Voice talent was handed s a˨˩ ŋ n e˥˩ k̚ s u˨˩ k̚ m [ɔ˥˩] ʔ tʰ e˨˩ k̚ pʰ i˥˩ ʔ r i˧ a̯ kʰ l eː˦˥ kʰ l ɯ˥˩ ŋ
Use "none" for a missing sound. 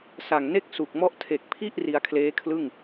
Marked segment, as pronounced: ɔ˥˩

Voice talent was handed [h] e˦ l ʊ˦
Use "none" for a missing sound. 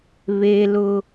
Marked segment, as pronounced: β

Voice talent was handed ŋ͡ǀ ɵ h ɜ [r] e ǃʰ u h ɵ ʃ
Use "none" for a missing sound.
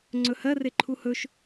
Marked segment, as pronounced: r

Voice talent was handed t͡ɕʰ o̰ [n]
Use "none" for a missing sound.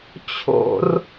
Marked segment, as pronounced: r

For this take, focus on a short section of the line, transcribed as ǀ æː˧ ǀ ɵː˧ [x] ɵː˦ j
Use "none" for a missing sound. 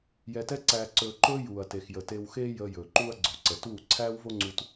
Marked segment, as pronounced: ǃ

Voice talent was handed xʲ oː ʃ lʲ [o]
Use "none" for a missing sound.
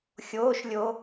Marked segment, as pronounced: o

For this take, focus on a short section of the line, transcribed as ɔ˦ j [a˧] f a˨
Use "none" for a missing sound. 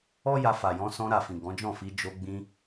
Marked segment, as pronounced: a˧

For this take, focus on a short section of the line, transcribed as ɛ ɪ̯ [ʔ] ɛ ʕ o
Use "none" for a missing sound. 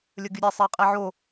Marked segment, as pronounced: qʼ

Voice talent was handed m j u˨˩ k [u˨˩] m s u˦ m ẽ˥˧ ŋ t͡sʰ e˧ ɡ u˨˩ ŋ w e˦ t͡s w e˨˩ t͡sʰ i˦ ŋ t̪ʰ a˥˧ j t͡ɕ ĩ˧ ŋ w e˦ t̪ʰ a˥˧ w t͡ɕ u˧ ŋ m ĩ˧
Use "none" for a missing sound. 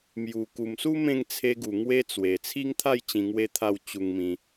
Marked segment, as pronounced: u˨˩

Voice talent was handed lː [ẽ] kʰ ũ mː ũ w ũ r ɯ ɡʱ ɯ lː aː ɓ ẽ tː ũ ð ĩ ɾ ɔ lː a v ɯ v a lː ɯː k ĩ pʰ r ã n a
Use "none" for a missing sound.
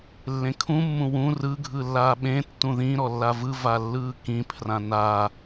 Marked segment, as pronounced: ẽ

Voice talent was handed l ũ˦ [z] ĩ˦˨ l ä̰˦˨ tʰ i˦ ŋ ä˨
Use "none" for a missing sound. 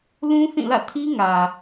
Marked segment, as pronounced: θ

